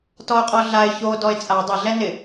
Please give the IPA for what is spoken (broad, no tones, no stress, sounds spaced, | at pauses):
t ɔ ʊ̯ qʼ ɔ ɮ a ɪ̯ ç o d ɔ ɪ̯ t͡sʼ a dˤ ɪ ɮ ɛ n ɪ